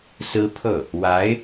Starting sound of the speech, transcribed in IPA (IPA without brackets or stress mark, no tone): s